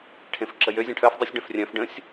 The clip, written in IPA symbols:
ʈʰ ẽ f ǁ ə j ø zʲ ɐ̃ ʈʰ œ f dˤ u sʲ ɖ œ̃ f rʲ œ̃ f ɖ ə̃ sʲ

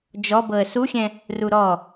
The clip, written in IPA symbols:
d͡ʒ ɔ b ɤ ə̯ s u xʲ ɛ̃ | r u ɾ ɔ

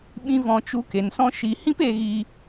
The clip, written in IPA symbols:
ɓ ĩ˧ v ɔ̃˧ t͡ʃ u˧ k e˨ n s ɔ̃˦ ʃ i˧ h ĩ˦ p e˧ ɣ i˧

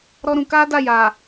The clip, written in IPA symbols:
ɾ ɔ˦ ɾ ũ˧ k a˦ d a˦˨ j a˨

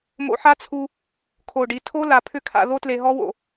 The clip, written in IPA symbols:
m o̰˧ ħ a˦˥ t͡sʰ u˧ | kʰ o˨˩ ɖ i˨˩ tʰ o˦˥ l a˨˩ pʰ ʏ˦˥ kʰ a̰˧ ð o˦˥ t l e˧ ɦ ɔ˦˥ w o̰˨˩

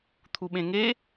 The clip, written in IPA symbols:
t̪ʰ u ɓ ẽ ŋ e

